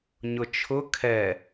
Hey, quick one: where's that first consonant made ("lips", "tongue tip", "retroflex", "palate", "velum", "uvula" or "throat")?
palate